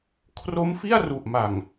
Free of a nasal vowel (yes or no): yes